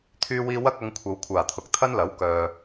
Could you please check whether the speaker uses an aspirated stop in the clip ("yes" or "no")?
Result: yes